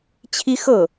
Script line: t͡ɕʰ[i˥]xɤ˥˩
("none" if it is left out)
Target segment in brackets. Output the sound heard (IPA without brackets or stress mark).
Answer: i˥